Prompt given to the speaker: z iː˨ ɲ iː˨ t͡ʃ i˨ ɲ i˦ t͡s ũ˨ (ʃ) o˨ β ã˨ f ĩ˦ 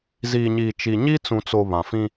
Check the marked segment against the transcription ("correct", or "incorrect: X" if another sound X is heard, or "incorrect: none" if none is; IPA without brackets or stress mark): incorrect: t͡s